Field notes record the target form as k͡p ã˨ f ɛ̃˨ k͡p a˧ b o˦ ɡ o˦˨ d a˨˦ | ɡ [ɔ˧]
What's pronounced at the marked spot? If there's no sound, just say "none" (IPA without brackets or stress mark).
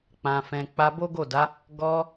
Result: ɔ˧